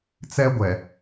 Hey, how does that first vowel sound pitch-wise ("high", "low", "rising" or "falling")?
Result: high